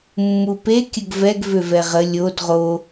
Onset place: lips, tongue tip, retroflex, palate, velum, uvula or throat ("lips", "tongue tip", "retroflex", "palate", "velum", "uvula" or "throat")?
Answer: lips